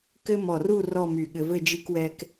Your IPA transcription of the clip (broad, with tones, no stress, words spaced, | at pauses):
kɘ˥ mɔ˧˩ru˥˧ rɔ˥˧my˧˩ɠɘ˧vɘ˥˧ d͡ʒi˧kwɛ˧k